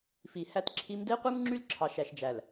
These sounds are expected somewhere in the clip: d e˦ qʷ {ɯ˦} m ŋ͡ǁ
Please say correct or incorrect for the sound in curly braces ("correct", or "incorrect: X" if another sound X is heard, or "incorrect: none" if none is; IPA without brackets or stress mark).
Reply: correct